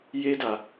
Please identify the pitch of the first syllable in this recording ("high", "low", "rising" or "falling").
high